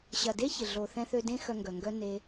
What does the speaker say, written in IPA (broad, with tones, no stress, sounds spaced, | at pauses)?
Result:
ɕ ɐ˨ d e˦ ç ɪ˨ ɮ o˨ θ ɛ̃˧ θ ø˧ d ẽ˦ x œ˧ ŋ ɡ œ˨ ŋ ɡ œ˦ n e˦